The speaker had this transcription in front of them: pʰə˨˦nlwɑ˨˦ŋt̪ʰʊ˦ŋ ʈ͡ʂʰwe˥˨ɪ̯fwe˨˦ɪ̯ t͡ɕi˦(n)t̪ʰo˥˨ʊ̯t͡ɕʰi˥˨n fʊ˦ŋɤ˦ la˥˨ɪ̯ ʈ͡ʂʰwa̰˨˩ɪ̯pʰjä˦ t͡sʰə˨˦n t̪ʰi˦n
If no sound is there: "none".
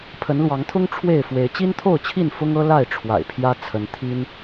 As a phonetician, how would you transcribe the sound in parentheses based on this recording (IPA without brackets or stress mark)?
n